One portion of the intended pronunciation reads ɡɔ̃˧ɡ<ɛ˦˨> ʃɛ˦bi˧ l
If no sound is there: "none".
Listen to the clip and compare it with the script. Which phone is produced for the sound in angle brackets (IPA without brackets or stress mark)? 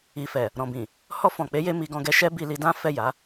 ɛ˧